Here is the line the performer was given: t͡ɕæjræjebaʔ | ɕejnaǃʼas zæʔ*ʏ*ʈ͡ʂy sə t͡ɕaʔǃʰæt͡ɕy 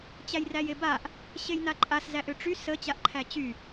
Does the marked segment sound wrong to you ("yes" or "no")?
no